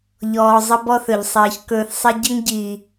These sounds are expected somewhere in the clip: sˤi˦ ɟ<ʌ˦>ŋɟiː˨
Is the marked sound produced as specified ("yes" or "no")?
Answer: no